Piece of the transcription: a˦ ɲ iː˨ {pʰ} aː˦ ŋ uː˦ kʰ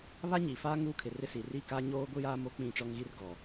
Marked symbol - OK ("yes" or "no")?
no